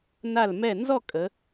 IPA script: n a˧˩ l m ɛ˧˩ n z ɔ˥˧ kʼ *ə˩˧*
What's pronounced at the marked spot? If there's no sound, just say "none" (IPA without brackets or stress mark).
ə˩˧